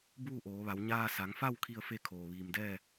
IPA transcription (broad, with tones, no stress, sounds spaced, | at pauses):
b uː˥˨ ʔ oː˩˧ ʋ a˩˧ w ɲ aː˧ s a˩˧ ŋ f a˥˨ w kʰ i˥˨ ə̯ f e˥˨ kʰ oː˩ ʋ iː˩ m d ɛː˥˨